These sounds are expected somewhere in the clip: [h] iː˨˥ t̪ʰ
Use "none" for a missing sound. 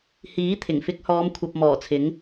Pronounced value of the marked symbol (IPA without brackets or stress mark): h